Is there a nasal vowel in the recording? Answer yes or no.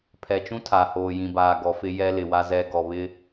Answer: yes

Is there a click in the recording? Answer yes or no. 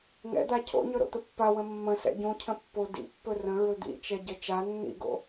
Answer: no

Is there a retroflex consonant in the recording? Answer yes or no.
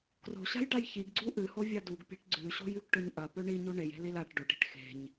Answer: yes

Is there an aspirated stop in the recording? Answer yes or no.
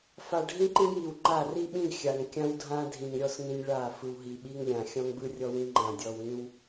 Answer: no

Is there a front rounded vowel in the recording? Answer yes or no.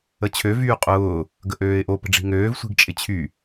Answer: yes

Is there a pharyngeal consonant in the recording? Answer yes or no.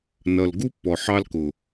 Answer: yes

